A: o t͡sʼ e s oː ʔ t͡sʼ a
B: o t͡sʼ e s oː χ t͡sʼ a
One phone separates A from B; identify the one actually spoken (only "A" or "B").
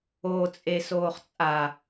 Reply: B